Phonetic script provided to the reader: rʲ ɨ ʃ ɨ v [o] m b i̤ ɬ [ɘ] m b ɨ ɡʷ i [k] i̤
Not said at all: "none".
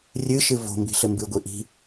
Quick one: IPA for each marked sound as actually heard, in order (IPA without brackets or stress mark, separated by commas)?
o̤, ɘ, ʔ